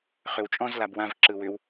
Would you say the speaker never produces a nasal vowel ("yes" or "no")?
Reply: no